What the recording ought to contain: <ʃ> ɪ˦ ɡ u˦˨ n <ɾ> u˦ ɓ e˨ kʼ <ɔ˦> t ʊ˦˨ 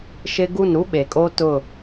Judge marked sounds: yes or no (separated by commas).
yes, yes, no